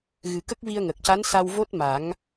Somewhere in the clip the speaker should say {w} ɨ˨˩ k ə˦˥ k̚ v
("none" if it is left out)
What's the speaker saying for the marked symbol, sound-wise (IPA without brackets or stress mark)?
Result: ɣ